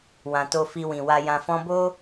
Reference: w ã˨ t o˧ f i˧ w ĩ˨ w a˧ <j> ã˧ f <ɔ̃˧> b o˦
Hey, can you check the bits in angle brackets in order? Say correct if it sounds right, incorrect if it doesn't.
correct, correct

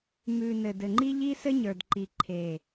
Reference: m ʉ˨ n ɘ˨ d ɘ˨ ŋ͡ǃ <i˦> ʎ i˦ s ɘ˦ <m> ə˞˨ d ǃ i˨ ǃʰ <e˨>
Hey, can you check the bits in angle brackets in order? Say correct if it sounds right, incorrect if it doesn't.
correct, incorrect, correct

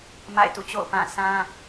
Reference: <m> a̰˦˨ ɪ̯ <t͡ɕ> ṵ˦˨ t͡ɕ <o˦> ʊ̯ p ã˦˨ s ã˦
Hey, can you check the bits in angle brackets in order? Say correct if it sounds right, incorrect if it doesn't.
correct, incorrect, incorrect

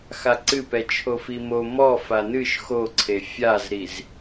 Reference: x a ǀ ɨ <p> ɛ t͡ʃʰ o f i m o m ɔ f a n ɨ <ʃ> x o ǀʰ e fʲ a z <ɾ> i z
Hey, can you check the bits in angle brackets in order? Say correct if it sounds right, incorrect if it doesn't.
correct, correct, correct

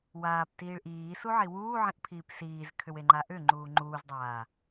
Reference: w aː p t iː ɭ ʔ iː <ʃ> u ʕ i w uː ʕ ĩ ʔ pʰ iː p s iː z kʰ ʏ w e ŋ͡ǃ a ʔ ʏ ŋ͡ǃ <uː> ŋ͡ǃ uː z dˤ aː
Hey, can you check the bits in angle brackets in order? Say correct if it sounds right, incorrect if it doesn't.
incorrect, correct

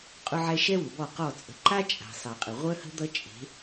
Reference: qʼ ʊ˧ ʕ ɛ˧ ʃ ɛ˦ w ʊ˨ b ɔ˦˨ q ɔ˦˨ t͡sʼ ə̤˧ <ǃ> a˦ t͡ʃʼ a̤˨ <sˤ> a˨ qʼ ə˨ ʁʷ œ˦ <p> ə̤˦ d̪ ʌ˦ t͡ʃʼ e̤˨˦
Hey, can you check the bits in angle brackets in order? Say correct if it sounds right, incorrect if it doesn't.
correct, correct, incorrect

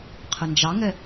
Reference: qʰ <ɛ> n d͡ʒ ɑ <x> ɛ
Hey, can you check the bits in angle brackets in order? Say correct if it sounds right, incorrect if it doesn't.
incorrect, incorrect

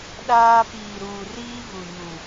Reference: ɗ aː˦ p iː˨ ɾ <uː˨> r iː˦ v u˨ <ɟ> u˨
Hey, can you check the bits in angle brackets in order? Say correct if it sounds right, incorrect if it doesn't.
correct, incorrect

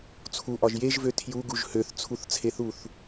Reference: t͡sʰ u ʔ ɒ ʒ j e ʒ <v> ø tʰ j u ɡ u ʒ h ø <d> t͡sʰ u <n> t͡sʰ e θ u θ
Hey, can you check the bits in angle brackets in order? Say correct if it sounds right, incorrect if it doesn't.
correct, incorrect, incorrect

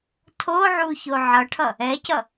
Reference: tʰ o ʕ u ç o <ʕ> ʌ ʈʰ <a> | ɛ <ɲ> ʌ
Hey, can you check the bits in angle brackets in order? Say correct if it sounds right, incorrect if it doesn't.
correct, incorrect, incorrect

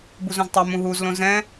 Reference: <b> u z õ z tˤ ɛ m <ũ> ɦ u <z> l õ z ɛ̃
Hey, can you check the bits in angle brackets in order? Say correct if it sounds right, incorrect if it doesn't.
correct, correct, correct

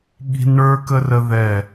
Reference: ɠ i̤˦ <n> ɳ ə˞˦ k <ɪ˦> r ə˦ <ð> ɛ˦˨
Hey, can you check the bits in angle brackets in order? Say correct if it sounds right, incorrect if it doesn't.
correct, incorrect, correct

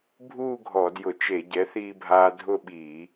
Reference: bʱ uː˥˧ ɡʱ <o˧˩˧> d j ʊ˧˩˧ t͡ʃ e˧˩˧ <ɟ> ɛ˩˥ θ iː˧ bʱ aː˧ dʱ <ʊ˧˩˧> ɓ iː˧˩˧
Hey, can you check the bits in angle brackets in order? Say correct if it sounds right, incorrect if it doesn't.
incorrect, correct, incorrect

